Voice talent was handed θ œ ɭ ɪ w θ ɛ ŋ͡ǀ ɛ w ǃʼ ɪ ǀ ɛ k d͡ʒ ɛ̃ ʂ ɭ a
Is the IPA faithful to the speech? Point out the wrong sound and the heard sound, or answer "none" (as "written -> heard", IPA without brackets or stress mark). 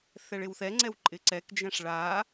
œ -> ɛ